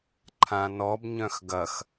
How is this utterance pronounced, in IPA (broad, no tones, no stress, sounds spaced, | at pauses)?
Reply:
ǃʰ ã n ɔ b ɲ œ̃ x ɡ ɐ x